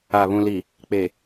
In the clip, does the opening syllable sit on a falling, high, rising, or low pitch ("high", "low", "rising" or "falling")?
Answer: low